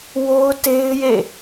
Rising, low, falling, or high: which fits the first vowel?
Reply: high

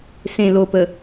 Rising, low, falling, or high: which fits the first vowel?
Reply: low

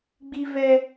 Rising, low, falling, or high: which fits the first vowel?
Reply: high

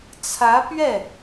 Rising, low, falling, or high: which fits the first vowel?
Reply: rising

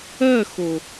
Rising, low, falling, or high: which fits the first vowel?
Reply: falling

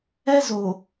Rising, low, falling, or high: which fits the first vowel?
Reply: high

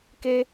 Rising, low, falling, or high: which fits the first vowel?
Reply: high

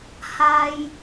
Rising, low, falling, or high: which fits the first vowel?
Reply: high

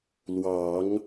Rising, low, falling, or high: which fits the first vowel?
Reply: rising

